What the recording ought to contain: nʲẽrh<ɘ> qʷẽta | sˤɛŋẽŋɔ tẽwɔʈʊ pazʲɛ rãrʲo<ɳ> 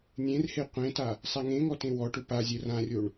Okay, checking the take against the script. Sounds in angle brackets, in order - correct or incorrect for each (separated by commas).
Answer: incorrect, correct